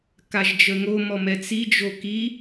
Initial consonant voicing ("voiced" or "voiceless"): voiceless